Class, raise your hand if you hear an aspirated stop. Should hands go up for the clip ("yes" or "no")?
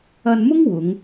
no